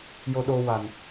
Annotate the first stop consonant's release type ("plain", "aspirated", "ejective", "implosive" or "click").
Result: implosive